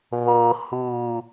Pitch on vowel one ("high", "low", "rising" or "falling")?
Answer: low